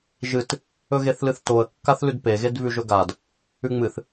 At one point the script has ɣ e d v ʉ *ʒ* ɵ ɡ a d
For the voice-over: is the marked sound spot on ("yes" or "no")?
yes